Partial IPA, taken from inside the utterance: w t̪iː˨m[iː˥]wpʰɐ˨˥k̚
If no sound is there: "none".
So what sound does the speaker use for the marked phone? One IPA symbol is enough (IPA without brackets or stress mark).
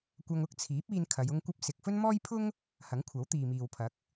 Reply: iː˨